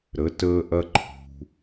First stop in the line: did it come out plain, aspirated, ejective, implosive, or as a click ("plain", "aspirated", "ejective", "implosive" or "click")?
plain